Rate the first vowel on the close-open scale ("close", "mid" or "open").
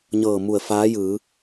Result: mid